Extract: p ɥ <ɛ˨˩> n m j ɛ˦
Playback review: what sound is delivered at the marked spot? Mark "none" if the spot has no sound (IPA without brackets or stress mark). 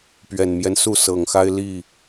ɛ˨˩